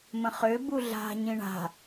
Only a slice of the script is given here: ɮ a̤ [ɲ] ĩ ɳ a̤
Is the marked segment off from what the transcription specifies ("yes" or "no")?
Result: no